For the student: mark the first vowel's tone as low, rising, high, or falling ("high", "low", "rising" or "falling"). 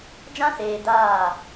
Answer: high